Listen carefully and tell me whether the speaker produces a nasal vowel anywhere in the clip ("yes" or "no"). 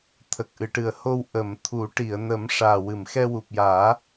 no